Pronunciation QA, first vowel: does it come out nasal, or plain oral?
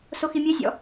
oral